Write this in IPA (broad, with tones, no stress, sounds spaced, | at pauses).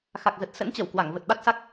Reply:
x a˨˩ k̚ z ə˨˩ t̚ s ə̰˧˥ n t͡ɕ ə˧˩ w k w a˧˩ ŋ v ə˨˩ t̚ ɓ a˦˥ t̚ s a˦˥ k̚